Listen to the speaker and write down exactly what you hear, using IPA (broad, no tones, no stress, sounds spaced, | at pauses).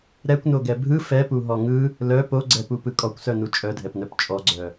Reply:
ɾ ɛ kʷ n o ɡ ɛ bʱ ɯ f ɛ p u ɦ ɔ ŋ ɯ | l œ p o ɡ͡ǀ ɛ p u p ɯ kʼ ɔ kʷ s œ n u t͡ʃʼ œ dʱ ɛ p n œ p t͡ʃʼ ɔ ɡ͡ǀ œ